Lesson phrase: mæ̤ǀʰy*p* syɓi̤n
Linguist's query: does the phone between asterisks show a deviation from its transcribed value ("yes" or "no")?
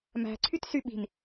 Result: yes